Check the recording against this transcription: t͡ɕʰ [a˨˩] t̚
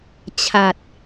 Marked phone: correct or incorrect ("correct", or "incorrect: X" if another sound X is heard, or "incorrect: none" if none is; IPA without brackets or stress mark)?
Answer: correct